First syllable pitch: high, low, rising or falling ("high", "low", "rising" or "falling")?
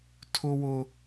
high